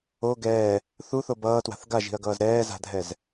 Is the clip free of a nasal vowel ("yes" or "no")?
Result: yes